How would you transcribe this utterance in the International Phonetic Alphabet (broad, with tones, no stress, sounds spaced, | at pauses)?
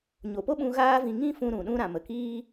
ɲ o˨ p o˦ ɓ ũ˧ ɣ aː˦ v ĩ˧ ŋ ĩ˦ f ũ˧ ɾ ũ˨ ɗ ũ˧ ɾ ã˨ m ə˨ k iː˦